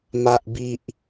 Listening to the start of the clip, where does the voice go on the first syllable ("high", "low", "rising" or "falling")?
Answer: high